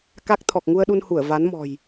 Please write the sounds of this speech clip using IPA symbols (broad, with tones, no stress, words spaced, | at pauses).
ka˦˥k̚ t̪ʰɔ˨˩k̚ŋu˧ə̯ɗu˧nhu˧˩ə̯ va˨˦nmɔ̤˨˩j